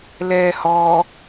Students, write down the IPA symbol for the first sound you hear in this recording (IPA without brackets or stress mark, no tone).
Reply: l